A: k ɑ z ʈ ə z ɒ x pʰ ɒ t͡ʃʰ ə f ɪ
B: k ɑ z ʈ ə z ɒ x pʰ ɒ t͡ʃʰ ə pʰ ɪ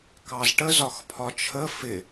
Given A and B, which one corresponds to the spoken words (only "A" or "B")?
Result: A